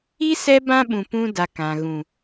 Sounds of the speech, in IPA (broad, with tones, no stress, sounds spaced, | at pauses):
i˦ s ɛ˦ b ã˦ ɓ ũ˨ p ũ˦ d a˨ k ã˨ ɣ ũ˨